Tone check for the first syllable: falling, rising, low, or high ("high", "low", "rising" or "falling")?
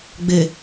low